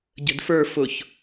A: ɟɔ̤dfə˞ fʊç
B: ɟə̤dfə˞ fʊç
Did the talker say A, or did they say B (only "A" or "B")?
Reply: B